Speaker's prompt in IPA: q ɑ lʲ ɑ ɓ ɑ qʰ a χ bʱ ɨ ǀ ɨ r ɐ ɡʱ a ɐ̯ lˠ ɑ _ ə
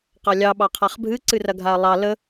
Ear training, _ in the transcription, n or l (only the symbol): l